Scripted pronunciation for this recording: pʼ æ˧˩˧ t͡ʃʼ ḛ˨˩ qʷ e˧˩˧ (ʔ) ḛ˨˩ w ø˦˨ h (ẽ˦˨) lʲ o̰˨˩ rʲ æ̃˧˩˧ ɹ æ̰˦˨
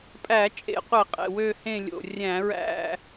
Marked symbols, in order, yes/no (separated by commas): no, yes